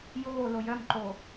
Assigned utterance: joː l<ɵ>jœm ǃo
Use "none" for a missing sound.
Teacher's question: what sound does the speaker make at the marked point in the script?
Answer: o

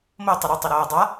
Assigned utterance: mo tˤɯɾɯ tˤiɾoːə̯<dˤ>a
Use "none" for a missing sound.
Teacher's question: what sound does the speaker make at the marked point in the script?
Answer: dˤ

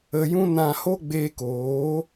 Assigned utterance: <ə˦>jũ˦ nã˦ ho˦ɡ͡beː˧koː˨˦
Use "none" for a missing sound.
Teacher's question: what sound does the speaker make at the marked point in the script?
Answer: ə˧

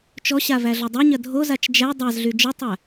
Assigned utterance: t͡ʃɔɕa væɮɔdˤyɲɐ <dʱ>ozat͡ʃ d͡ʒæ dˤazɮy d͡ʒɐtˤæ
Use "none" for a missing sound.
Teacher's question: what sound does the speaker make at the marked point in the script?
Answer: dʱ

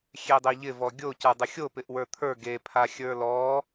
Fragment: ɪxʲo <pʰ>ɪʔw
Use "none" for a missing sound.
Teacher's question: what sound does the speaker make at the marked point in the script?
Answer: p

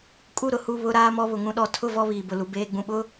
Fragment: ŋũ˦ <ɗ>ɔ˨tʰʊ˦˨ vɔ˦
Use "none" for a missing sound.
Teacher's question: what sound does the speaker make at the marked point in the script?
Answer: ɗ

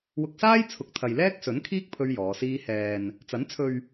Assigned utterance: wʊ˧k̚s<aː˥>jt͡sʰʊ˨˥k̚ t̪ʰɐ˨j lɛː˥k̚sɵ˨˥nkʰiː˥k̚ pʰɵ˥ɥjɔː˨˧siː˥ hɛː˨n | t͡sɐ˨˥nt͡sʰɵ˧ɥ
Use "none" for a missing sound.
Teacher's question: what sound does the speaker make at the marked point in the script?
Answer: aː˥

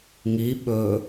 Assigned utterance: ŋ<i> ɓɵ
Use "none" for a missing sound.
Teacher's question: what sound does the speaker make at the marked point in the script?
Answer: i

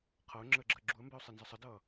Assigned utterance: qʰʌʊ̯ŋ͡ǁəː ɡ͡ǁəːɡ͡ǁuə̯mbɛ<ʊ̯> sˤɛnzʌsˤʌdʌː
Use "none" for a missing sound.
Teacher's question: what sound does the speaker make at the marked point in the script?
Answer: ʊ̯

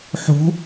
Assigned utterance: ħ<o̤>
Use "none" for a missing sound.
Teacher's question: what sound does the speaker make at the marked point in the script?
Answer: o̤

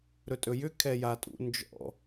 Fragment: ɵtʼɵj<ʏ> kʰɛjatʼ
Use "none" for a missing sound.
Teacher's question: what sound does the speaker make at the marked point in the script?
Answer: ʏ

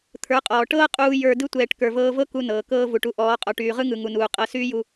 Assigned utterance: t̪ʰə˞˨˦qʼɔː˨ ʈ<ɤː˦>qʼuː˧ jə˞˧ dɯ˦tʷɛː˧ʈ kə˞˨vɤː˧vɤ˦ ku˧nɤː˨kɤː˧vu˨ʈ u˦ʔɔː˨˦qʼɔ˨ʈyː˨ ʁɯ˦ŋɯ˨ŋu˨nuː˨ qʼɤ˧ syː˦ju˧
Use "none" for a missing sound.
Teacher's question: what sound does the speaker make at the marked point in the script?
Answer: ɤː˦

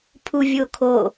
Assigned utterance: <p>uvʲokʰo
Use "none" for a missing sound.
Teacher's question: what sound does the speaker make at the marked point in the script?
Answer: pʰ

